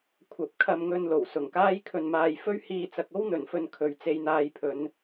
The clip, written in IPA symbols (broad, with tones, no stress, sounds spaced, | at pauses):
kʷʰ ɐ˨˥ p̚ kʰ ɐ˧ m ŋ ɵ˧ n l o˨˩ w s ʊ˨˩ ŋ k aː˥ j kʰ ɵ˧ n m aː˧ j f ɵ˥ ɥ h iː˧ t͡s ɐ˧ k̚ o˥ w n̪ ɵ˨˩ n f ɵ˧ n kʰ ɵ˨ ɥ t͡s e˧ j n̪ aː˧ j pʰ ɵ˨˧ n